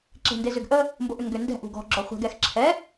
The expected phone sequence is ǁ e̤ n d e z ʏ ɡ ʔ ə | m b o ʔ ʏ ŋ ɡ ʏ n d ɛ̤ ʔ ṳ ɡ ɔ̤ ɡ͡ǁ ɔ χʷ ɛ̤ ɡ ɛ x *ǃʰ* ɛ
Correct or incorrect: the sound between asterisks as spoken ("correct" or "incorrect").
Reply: incorrect